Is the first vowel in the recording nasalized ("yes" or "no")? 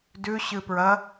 no